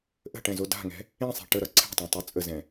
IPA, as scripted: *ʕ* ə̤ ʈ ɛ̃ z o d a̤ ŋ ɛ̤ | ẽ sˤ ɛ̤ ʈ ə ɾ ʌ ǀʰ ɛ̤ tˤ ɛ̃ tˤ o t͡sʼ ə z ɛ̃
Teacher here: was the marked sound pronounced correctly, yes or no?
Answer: no